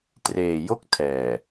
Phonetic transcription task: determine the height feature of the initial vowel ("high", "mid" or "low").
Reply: mid